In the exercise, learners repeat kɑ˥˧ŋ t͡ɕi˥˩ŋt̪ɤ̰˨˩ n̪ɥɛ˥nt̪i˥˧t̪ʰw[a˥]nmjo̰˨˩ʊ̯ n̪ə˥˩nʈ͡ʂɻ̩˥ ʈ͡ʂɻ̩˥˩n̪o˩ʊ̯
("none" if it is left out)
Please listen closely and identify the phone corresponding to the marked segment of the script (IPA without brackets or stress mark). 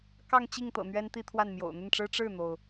a˥˩